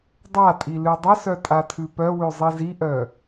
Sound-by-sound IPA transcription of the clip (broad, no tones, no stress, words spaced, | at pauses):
dˤatʼi lʉdˤəsœ tʼatʰʉpœwʉ zˤiziʔœ